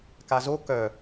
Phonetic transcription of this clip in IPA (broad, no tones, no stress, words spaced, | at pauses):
kazo kœ